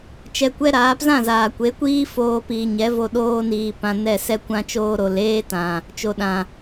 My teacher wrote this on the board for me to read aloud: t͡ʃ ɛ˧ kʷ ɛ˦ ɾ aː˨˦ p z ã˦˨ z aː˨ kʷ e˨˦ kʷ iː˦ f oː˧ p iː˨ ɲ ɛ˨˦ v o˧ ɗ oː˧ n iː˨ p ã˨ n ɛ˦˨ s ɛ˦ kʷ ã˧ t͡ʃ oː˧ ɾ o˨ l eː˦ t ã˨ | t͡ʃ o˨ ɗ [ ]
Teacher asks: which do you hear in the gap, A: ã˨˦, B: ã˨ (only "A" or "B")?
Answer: B